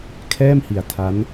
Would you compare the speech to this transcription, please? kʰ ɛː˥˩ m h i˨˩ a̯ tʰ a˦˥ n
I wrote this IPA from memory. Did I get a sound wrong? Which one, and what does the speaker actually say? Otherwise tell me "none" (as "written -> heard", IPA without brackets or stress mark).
none